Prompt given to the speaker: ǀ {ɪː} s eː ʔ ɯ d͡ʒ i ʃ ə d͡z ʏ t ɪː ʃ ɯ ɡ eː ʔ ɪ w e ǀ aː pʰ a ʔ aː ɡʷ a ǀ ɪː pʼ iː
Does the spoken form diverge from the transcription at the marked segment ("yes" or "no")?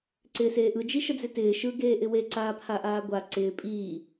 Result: no